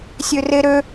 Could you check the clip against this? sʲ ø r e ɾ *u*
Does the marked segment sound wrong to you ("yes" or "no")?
yes